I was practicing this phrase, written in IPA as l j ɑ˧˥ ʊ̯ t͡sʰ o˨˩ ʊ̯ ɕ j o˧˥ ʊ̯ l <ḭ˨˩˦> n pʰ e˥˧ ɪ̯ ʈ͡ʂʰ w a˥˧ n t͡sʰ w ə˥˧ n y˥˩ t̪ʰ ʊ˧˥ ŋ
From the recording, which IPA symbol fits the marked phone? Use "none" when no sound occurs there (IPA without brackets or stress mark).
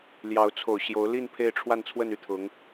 i˥˧